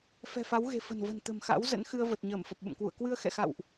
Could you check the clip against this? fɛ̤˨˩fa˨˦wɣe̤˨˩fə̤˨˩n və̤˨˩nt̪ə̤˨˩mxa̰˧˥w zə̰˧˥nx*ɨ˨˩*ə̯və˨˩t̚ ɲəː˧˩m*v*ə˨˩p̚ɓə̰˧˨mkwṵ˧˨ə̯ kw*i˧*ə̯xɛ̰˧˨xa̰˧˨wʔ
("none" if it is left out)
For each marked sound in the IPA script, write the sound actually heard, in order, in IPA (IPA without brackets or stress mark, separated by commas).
ɨ˧, f, ɨ˧